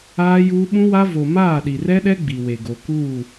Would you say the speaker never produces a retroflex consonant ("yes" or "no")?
yes